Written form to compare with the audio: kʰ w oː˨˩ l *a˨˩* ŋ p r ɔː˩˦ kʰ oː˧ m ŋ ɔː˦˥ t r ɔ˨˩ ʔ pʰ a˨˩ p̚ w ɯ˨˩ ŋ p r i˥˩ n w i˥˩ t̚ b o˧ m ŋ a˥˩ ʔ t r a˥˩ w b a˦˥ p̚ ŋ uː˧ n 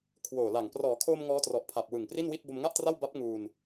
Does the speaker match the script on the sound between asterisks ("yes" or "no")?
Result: yes